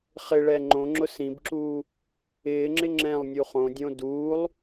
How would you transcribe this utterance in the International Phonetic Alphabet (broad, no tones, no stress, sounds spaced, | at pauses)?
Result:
χ ɪ ɭ ɛ ŋ͡ǃ õ ŋ͡ǁ ʊ s ĩ b ǁ uː | ɪː ŋ͡ǁ ɪ ŋ͡ǁ ɛ̃ lˠ nʲ u χ õ dʲ õ d uː lˠ